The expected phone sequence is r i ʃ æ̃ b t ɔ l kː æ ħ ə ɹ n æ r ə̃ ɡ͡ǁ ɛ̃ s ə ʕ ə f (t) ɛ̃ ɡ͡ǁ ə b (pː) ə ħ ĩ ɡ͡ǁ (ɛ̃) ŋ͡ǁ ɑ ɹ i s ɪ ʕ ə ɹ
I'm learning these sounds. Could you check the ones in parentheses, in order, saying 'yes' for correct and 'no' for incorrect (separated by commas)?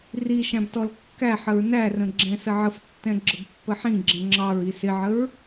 no, yes, yes